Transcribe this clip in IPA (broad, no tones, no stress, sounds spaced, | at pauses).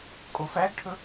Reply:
kʼ o f æ ɡ ʈʰ ɵ